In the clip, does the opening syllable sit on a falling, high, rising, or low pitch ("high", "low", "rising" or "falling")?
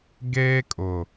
high